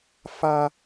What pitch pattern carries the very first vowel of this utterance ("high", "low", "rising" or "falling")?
high